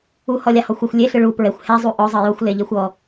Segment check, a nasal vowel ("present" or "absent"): absent